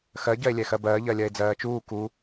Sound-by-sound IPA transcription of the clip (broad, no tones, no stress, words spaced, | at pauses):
xɜ ɟɜe̯lʲɛxɜbɜː ʎɜlʲɜe̯d͡zɜːt͡ʃuː ku